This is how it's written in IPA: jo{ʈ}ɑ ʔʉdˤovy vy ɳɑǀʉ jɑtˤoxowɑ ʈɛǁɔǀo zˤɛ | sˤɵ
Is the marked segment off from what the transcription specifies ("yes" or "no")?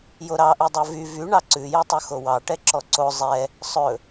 yes